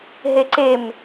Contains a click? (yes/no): yes